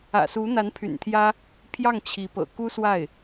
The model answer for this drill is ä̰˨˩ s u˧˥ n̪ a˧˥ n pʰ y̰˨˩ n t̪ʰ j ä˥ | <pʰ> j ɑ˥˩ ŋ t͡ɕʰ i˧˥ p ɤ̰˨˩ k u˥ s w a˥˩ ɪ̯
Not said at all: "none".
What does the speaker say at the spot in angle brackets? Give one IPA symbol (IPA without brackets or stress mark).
pʰ